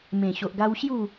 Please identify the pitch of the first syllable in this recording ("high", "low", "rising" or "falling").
low